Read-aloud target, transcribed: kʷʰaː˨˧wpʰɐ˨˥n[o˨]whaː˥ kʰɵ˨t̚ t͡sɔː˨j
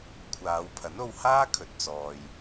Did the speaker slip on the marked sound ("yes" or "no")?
yes